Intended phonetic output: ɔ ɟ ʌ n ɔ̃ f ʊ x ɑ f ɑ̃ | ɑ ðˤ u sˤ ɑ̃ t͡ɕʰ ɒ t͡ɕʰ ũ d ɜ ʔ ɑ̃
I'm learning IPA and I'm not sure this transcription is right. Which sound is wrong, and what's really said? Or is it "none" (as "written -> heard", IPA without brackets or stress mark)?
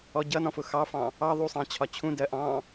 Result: none